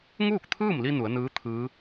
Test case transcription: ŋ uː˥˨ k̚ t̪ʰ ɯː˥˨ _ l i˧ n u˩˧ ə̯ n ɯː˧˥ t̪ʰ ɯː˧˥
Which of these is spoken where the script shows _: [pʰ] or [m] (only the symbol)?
m